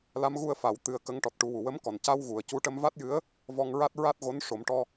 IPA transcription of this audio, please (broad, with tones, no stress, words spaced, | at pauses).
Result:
la˧˥mɣu˧ə̯fa˨˩˦w t̪ɨ˧ə̯kə˧˥ŋ ʈɔ˨˩t̚ʈu˨˩˦ wu˨˩wə˧˥mkɔ˨˩n ca˧wɣu˨˩ə̯ cu˧ʈə˧mva˦˥t̚jɨ˧˥ə̯ | vɔ˧ŋɹa˦˥t̚ ɹa˦˥t̚ɣo˧˥n ʂo˨˩˦mʈɔ˧